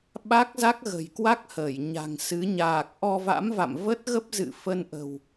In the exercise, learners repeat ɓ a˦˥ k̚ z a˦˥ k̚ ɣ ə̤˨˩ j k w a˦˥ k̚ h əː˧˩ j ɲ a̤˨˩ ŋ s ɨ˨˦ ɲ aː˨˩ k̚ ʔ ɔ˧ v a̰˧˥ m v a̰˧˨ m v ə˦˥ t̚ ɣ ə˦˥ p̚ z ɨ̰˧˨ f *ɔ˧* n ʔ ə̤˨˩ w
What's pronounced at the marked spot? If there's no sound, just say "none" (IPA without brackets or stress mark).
ə˧